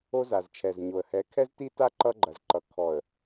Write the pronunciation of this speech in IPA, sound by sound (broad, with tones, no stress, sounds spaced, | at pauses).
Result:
o˦ z a˨ z t͡ʃʰ ɛ˨ z ɲ o˨ ə̯ h ɛ˨˦ kʰ ɛ˦ z t i˦ t a˦ ǃ ʌ˦ ɡ͡ǃ ɐ˨ z ǃ ʌ˨ kʰ ɔ˨ ə̯